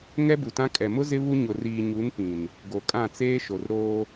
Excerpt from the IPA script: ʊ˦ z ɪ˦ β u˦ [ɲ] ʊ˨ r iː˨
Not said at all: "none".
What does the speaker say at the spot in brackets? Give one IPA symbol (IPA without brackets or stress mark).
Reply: ɲ